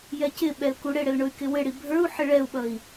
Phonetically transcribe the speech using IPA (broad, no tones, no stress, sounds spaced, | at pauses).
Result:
j ɛ c ɪ ɓ ɛ l k u ɽ ɪ ɽ ɪ l ɳ ʊ y̯ k ɪ w ɪ ɽ i bʱ ə˞ u̯ ħ ɪ ɭ ɛ u̯ ɓ ʌ i̯